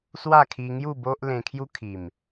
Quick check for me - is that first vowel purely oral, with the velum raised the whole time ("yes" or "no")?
yes